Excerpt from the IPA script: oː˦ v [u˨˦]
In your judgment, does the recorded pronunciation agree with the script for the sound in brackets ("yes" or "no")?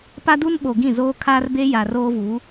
yes